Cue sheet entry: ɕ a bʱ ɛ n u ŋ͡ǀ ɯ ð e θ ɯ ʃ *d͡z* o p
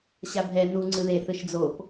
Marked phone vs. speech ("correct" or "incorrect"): correct